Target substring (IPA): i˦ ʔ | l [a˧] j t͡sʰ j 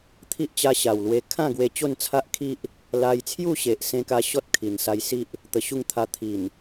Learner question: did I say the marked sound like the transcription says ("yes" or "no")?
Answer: yes